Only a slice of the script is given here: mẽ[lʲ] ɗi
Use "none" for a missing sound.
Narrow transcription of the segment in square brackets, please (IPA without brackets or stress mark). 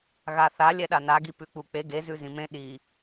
none